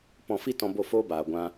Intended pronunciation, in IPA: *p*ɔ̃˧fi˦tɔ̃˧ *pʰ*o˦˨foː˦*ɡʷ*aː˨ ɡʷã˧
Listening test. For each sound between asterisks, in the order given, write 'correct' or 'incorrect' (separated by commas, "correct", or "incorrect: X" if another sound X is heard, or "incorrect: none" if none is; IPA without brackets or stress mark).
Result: correct, incorrect: b, incorrect: b